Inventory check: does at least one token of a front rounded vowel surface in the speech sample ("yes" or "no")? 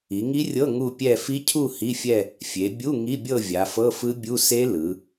no